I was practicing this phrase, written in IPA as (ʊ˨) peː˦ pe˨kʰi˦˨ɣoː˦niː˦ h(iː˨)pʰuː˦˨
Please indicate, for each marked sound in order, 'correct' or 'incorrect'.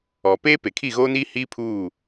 incorrect: ɔ˨, incorrect: iː˦

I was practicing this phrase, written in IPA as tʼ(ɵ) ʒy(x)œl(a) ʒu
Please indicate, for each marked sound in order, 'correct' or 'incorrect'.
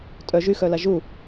incorrect: œ, correct, correct

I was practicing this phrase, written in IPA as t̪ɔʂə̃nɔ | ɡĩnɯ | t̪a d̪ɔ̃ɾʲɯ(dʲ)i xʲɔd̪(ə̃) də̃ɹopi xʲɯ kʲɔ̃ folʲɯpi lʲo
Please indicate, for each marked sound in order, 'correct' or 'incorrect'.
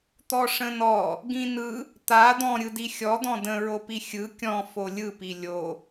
incorrect: d, incorrect: ɔ̃

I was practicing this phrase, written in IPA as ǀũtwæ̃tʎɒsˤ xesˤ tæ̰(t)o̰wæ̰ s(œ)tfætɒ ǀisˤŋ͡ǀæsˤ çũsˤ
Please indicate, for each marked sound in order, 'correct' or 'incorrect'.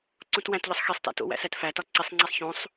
correct, incorrect: æ

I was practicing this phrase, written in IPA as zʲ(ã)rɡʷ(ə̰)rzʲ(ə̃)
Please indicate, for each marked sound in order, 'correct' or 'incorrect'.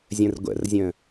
incorrect: ə̃, correct, correct

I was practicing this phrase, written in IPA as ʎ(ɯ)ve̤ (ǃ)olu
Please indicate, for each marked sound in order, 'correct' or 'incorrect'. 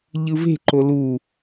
correct, correct

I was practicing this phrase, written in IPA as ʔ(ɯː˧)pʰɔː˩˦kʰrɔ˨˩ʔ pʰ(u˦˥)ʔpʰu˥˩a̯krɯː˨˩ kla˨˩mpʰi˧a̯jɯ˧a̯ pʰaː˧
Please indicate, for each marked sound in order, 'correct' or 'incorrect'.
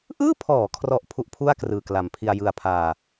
incorrect: ɯː˥˩, correct

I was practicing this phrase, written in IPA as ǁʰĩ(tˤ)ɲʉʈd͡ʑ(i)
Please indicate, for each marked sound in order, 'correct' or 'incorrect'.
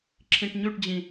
incorrect: ʈ, incorrect: ĩ

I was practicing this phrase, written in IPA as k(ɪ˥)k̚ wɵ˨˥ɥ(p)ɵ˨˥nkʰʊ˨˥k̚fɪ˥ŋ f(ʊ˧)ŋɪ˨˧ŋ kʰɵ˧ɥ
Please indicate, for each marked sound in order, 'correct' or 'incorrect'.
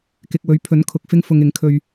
incorrect: ɪ˨, incorrect: pʰ, correct

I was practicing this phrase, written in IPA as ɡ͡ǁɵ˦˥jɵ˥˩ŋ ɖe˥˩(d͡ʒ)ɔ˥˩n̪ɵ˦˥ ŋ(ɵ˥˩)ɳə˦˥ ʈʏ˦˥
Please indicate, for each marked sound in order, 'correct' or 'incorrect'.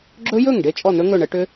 incorrect: t͡ʃʼ, correct

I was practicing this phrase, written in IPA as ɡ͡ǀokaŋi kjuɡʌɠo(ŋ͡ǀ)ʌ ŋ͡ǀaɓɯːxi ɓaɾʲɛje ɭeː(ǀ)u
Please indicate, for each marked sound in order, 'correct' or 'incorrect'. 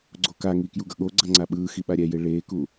incorrect: ɡ͡ǀ, incorrect: k

